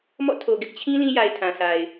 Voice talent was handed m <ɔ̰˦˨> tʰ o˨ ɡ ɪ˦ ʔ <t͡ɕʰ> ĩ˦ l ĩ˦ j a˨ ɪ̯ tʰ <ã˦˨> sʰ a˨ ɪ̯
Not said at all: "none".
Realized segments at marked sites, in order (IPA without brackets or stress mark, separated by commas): ɔ̰˦˨, t͡ɕʰ, ã˨